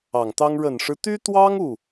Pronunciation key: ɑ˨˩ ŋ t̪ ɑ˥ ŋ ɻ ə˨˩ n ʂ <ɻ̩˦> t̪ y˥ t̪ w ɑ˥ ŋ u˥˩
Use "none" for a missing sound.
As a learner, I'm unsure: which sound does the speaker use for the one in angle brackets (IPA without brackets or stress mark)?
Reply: ɻ̩˦